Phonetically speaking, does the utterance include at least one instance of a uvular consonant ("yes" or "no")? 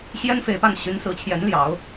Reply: no